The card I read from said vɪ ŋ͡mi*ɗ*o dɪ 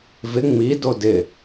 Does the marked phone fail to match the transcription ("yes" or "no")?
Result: yes